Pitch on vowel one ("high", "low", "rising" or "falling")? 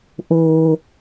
low